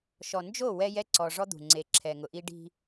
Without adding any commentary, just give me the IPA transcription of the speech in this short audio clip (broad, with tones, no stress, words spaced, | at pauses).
ʃɔ˨nd͡ʒo˦˨ wɛ˦jɛ˦ǀɔ˨ ʐɔ˦d̪ṳ˨ŋ͡ǀe˨˦ǁʰɛ˨ ŋʊ˨ʔi˦ ɖi̤˦